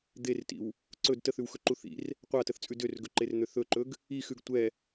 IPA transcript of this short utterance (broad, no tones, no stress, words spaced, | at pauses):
d̪ertḭw | ǀɵd təθʉwxɵǃu θḭr | qʷatəθt͡sʼʉ dørɡɵǃern̪ø θɵǃɵɡ | ixʉɡ tʷɛ